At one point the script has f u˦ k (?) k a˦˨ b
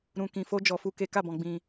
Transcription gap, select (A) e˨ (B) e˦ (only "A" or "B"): B